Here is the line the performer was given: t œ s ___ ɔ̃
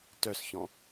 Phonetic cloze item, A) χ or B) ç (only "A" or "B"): B